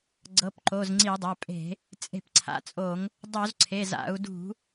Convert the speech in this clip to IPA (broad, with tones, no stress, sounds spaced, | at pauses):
ɡ͡ǀ ɤ˩˧˩ p ǃ o˩˧˩ z ŋ͡ǀ i˧˩˧ dˤ a˩˧˩ pʼ e̤˧˩˧ | t͡sʼ e̤˧˩˧ p ǀʰ a̰˩˧˩ t͡sʼ o˧˩˧ ŋ | dˤ o˧˩˧ z ǀʰ e˩˧˩ z a̰˧˩˧ u̯ d ṳ˧˩˧